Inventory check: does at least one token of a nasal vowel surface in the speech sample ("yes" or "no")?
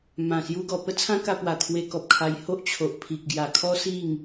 yes